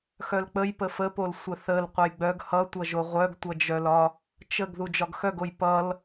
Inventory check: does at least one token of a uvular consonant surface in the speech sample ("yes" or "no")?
yes